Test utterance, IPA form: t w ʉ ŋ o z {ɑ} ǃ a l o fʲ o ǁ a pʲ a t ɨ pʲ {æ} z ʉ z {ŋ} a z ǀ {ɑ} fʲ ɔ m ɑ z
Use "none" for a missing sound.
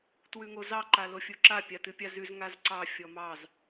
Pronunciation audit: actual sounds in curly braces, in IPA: ɑ, a, ŋ, ɑ

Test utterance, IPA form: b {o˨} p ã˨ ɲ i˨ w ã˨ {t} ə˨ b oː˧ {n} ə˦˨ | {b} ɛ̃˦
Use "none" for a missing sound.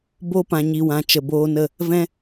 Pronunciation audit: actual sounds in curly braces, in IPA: o˧, t͡ʃ, n, v

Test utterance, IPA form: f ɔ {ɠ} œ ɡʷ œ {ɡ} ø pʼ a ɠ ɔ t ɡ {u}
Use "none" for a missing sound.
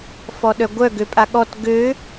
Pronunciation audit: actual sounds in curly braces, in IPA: ɗ, ɡ, ø

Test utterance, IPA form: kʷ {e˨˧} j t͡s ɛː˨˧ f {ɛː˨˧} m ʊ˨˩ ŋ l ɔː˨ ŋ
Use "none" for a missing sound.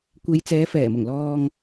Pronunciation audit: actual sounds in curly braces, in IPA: e˨˧, ɛː˨˩

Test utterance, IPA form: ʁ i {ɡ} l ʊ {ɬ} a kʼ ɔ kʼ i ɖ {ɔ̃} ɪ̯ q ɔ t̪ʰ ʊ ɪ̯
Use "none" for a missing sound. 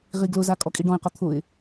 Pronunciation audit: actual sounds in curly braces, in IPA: ɡ, z, ɔ̃

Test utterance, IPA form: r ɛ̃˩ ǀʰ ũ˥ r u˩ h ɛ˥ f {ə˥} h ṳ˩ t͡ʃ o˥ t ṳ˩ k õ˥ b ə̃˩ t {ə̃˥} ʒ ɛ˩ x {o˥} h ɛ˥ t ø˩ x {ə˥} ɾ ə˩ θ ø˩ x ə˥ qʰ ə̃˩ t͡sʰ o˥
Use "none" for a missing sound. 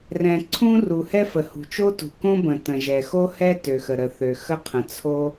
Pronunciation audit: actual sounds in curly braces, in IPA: ə˩, ə̃˩, o˥, ə˩

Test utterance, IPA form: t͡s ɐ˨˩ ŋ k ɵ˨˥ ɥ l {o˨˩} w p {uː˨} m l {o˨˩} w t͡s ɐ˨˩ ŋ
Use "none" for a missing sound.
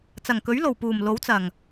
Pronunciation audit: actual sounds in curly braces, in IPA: o˨˩, uː˨˩, o˨˥

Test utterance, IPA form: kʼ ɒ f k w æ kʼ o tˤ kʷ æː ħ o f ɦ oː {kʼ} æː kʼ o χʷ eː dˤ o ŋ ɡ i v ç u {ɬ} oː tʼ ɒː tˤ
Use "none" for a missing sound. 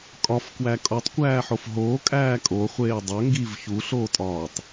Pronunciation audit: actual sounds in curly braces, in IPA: kʼ, ɬ

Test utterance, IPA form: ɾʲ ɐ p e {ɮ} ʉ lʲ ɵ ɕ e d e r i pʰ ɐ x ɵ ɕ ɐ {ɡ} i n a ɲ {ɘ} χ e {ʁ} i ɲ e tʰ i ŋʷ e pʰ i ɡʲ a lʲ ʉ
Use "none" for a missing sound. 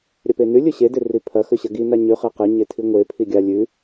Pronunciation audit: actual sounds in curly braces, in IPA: n, ɡ, ʉ, q

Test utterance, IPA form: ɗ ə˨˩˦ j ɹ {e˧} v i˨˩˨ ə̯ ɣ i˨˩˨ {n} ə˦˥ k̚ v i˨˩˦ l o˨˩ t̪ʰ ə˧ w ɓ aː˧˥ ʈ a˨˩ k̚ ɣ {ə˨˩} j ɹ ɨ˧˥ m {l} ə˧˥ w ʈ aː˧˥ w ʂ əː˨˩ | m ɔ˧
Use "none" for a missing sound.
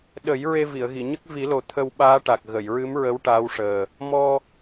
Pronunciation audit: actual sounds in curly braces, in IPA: e˧, ɲ, ə˨˩˨, ɹ

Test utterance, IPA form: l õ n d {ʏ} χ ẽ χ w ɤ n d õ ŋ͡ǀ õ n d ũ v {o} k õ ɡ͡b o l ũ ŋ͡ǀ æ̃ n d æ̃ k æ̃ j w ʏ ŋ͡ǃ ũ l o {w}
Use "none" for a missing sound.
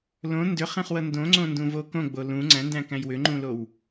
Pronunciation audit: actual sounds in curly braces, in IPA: ʏ, o, w

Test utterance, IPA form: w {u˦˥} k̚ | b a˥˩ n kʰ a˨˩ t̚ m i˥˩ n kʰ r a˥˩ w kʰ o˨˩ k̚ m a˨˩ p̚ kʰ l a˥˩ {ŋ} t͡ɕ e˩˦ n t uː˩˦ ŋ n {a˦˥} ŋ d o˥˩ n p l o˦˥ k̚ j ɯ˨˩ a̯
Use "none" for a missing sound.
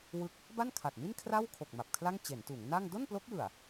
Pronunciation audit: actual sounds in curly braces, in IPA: ɯ˦˥, ŋ, a˥˩

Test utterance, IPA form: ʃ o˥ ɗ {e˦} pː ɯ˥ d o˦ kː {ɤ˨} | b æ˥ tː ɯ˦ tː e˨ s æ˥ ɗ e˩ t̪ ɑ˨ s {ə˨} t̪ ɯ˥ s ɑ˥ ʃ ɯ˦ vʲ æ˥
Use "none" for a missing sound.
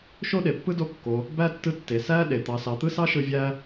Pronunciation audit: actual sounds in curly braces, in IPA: e˩, o˨, ɑ˨

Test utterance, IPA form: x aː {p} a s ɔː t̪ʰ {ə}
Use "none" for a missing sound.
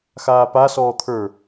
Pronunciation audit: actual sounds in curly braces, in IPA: p, ə˞

